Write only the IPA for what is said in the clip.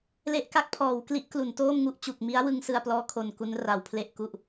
l e˦˥ ʔ k a˦˥ k̚ pʰ ɔː˩˦ w k l i˦˥ ʔ k l u˩˦ n t oː˥˩ m ŋ u˦˥ ʔ t͡ɕ u˨˩ k̚ m i˦˥ a̯ w ɯ˧ ŋ s ɯ˧ a̯ p l ɔː˦˥ kʰ o˨˩ n k u˦˥ n r a˩˦ w pʰ l e˥˩ ʔ k u˥˩ ʔ

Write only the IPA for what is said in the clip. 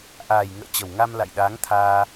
ʔ aː˨˩ j ŋ ə̰ː˧˨ t͡ɕ ə˨˩ w ŋ a˧ m l a̰˧˨ j ɗ aː˨˦ ŋ t̪ʰ aː˧

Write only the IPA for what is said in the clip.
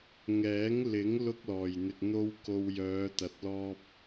ŋ ɛː˨˥ ŋ l ɪ˨˥ ŋ l ʊ˥ k̚ l ɔː˨˩ j n̪ ɪ˨ k̚ n̪ o˥ w k o˧ w j œː˨˧ t̪ ɐ˨ t̚ l ɔː˥ p̚

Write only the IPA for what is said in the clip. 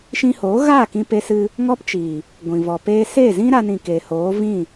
ʃ ĩ˧ h oː˨˦ ɣ aː˦˨ k ĩ˧ p e˧ s ɨ˧ | ŋ ɔ˦ p t͡ʃ iː˨ | ɡʷ ĩ˨ v ɔ˨ p eː˦ s eː˦˨ z ĩ˦ ɾ a˧ n ĩ˨ k eː˨ h oː˨˦ v ĩ˦˨

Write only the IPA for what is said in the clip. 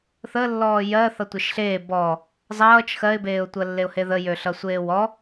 θ ə lː ɔː j ɜ θ ʌ tʷ e ʃ ɬ eː b ɔ | zˤ ʌː t͡ʃ x ɜ ɪ̯ b eː ʊ̯ tʷ ɜ lː e ʊ̯ h e ð ə j ø ɬ ʌ sʷ eː w ɔ

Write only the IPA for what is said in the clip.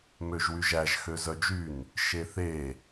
m ø ʒ w y ʒ æ ʒ x ø z œ d͡ʒ y n | ʃ e θ e

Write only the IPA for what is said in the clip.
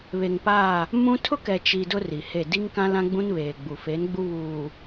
β e˨ ŋ p a˦˨ | m ũ˦ tʰ ʊ˦ k ɛ˨ t͡ʃ i˨ d ʊ˦ r i˨ h e˦˨ d i˦ ŋ k ã˦ l ã˦ ɡ͡b ũ˦ n β eː˨ ɡ͡b u˨ f e˨˦ n ɡ͡b u˦ β uː˨

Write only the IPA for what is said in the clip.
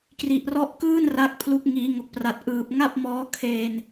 k r i˨˩ ʔ r ɔ˦˥ ʔ k ɯː˥˩ n r a˦˥ k̚ pʰ l u˦˥ k̚ ŋ iː˩˦ ŋ o˨˩ k̚ p r a˨˩ t̚ ʔ ɯː˨˩ p̚ ŋ a˥˩ p̚ m ɔː˦˥ kʰ eː˧ n

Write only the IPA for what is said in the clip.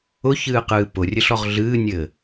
ʊ ç ɨː q ɨː p ʊ rʲ ɘ ɬ ɔ ʁ ɮ ɨː nʲ ɘː

